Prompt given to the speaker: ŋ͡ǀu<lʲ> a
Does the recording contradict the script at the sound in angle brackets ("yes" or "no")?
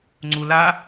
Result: yes